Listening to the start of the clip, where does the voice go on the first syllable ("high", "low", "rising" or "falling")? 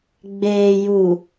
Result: low